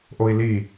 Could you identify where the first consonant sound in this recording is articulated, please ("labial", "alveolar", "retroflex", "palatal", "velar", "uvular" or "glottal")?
glottal